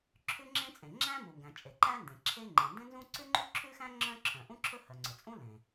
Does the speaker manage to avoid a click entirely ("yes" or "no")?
no